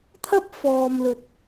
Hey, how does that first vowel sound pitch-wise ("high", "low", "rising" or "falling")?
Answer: high